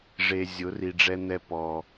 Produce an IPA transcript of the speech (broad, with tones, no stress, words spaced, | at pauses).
ʐe˨ zʲʊ˨˦ri˨ ɖ͡ʐɛ˦n̪ɛ˦ pɔ˨